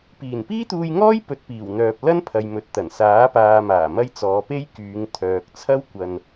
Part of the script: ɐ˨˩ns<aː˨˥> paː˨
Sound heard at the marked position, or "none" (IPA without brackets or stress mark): aː˨˥